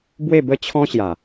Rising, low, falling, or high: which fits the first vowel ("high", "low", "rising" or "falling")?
falling